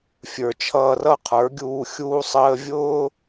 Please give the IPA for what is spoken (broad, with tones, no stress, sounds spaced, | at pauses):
fʲ ə˞˨ t͡ʃʰ ʌː˧ r ʌ˦ qʰ ə˞˨˦ ɡʲ uː˧ xʲ uː˧ sˤ əː˧ vʲ ʊː˦